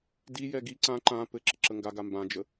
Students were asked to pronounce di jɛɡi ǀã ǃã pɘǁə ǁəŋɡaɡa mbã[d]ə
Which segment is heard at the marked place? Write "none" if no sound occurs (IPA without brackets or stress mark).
d͡ʒ